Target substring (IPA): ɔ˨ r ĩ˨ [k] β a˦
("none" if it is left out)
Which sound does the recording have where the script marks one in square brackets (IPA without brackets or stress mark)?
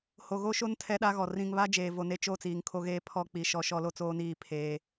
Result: ŋ